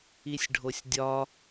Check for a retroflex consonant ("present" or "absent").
present